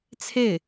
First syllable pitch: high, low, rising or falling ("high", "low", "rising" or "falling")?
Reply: falling